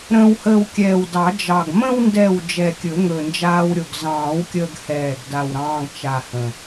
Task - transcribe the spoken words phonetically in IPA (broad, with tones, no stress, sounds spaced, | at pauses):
ɾ ə̃ː˧ w h əː˧ w kʲ ɛː˨˩ w d ɑ˨˩˦ d͡ʒ ɑ˨˩ ɡ m ə̃˧ w n d ɛ˨˩ w d͡ʒ ɛ˨˩ kʲ ɵ˨˩˦ ŋ ɵ˨˩ n d͡ʒ aː˧ w ɾʲ o˨˩ ɡ z ɑ̃ː˨˩˦ w kʲ əː˧ ɡ h ɛː˨˩ ɡ d a˨˩ w ɾ ɑ̃ː˧ ɡ t͡ʃ a˨˩ h ə̃˨˩